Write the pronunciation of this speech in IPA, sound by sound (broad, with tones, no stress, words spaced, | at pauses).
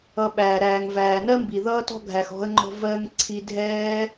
ʌ˨ɓæː˩ ɾæː˩ŋvæː˩nɜ˦mbi˩ ðʌː˦tɔ̤˦ɡʱæ˨x ɔ̤˦ə̯ŋ͡ǃɔ̤˦ vɜ˦ŋ ǀʰi˦dʱɛː˥